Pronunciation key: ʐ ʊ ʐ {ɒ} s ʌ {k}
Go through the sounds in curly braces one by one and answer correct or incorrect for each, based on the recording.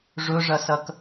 incorrect, correct

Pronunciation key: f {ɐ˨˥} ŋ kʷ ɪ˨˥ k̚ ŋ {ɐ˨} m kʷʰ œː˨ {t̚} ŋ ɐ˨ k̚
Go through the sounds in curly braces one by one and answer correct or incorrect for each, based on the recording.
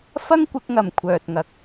incorrect, correct, correct

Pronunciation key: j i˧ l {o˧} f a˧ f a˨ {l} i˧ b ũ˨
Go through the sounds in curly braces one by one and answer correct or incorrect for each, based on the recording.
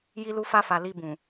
incorrect, correct

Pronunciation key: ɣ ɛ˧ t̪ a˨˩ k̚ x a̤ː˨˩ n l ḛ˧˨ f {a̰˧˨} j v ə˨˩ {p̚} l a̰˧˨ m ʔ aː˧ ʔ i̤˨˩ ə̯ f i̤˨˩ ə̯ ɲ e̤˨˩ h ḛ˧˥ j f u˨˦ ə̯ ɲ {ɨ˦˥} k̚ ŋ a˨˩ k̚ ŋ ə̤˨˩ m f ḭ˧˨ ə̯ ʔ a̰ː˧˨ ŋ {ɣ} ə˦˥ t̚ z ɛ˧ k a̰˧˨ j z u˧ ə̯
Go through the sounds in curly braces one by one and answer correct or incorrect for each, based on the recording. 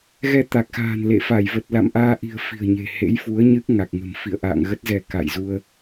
incorrect, incorrect, correct, correct

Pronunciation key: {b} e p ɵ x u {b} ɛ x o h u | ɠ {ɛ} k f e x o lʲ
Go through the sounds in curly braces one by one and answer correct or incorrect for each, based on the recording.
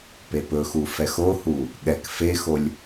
incorrect, incorrect, correct

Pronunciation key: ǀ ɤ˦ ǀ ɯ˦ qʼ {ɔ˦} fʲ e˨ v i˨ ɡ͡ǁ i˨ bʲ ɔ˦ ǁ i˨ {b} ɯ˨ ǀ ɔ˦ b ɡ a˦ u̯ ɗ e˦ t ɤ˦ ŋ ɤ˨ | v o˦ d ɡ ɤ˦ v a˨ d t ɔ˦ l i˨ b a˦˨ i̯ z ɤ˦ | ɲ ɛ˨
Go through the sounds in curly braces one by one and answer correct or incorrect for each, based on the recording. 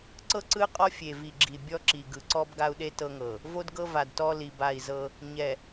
correct, incorrect

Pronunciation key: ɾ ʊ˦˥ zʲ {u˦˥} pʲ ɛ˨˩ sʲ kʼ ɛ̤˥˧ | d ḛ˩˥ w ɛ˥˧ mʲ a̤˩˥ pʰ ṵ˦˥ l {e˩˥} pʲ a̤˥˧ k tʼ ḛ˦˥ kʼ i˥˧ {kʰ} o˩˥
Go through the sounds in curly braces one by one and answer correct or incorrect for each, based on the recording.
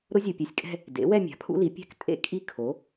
incorrect, incorrect, correct

